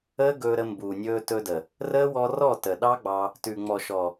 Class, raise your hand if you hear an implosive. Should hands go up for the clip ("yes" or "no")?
yes